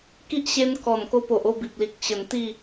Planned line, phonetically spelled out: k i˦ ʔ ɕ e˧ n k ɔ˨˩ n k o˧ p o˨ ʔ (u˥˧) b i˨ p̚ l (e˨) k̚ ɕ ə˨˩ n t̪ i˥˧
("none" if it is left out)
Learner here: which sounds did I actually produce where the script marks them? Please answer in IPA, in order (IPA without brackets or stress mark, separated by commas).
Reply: o˥˧, i˨